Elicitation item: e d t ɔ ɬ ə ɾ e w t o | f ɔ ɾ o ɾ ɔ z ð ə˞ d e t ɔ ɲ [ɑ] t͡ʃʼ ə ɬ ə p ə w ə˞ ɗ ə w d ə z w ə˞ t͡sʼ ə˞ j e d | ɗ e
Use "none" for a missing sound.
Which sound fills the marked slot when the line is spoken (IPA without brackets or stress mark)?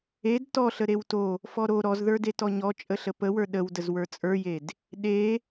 ɔ